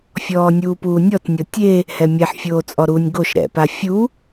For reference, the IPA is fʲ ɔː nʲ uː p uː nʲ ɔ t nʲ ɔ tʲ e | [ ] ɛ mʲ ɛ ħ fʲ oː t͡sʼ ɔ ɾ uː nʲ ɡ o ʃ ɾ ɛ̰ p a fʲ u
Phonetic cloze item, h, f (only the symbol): h